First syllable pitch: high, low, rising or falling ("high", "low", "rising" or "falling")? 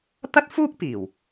high